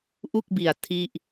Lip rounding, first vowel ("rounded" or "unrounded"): rounded